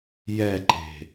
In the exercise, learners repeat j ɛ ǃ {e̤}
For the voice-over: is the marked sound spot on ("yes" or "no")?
yes